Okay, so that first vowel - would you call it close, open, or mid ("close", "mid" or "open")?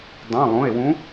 close